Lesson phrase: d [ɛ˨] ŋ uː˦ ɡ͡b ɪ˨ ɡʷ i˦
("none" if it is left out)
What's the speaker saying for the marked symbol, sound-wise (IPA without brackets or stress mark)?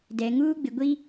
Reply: ɛ˨